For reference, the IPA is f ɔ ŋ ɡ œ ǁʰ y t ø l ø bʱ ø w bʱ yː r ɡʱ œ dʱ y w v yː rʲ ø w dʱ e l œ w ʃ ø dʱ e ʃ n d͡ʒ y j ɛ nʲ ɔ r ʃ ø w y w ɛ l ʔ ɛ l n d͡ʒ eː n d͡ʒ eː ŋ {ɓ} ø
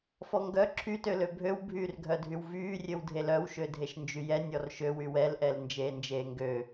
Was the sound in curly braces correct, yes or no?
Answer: no